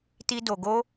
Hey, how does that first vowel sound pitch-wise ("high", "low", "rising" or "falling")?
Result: high